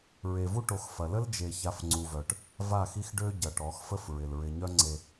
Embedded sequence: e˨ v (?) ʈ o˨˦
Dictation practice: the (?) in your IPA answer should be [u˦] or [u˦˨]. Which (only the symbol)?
u˦